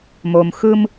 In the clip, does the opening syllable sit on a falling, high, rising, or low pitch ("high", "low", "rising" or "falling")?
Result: low